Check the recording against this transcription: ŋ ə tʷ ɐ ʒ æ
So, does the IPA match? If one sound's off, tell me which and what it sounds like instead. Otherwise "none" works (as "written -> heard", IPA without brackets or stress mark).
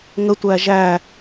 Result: ɐ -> æ